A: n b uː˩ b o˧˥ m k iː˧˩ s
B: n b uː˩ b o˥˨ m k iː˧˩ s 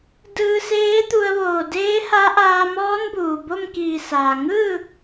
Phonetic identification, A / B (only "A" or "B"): B